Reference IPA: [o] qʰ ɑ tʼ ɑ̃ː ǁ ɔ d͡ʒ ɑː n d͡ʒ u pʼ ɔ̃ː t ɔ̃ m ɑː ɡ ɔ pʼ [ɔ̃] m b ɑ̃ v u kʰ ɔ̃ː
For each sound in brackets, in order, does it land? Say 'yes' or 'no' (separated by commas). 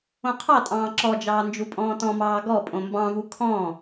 no, no